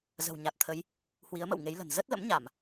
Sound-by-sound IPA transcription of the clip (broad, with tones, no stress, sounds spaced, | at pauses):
z ə̤˨˩ w ɲ a˨˩ t̚ t̪ʰ ə˨˦ j | h w i˨˦ ə̯ m ə̰˧˨ w ŋ e˨˦ j l ə̤˨˩ n z ə˦˥ t̚ l ə̰˧˥ m ɲ a˧˩˨ m